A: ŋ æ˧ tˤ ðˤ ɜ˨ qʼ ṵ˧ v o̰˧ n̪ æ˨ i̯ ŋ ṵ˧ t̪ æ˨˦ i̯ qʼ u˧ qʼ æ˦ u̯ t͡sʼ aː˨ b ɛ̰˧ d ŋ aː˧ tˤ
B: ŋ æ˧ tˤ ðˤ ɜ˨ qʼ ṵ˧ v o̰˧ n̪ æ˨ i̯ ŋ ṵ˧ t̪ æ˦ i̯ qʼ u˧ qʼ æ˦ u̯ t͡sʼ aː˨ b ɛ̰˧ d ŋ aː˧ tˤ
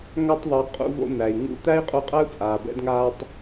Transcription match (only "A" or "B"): B